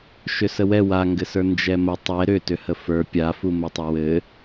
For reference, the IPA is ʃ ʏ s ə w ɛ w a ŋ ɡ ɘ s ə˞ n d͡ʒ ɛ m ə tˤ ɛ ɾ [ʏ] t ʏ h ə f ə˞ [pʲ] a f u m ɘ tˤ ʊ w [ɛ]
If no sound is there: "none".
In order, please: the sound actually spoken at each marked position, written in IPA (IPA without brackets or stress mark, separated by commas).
ʏ, pʲ, ɘ